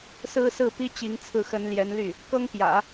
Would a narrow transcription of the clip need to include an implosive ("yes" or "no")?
no